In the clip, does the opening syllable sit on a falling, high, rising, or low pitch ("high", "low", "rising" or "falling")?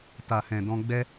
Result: low